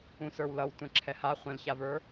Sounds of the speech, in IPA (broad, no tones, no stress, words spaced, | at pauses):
ũsə˞wlʌw tʷɛ̃ǁʰɛha χʷɛ̃lçavə˞